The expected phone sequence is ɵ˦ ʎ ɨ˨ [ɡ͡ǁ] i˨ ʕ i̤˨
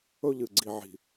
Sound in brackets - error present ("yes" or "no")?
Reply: yes